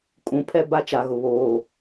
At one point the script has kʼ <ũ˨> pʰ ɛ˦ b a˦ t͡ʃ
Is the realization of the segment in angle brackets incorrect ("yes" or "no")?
no